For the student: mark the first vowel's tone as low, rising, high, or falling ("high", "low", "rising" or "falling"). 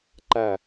falling